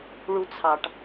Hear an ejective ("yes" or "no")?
no